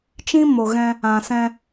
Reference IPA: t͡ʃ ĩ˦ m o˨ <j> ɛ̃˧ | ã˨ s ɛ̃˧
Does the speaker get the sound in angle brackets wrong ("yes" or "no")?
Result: yes